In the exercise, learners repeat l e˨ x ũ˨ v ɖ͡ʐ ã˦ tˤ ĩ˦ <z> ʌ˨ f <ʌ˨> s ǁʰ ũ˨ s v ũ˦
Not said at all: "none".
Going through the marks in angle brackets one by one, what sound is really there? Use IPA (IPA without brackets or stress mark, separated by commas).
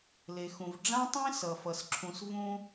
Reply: s, ʌ˨